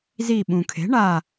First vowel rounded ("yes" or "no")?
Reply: no